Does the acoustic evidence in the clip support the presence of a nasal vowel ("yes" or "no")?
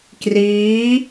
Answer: no